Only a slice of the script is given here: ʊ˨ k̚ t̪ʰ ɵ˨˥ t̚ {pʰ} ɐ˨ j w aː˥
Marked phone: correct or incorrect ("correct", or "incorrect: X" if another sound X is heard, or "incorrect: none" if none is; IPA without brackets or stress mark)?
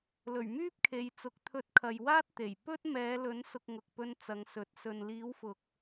incorrect: kʰ